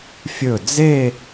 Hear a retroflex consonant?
no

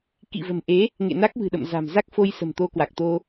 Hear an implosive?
yes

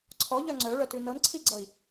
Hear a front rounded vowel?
yes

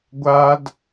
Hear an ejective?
no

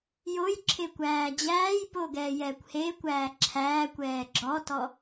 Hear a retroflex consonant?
no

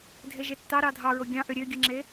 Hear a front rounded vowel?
yes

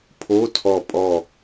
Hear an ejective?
yes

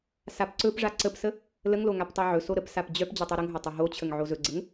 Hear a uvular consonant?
no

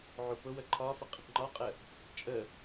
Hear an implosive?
no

